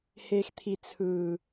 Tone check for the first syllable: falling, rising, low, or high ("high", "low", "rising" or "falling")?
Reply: low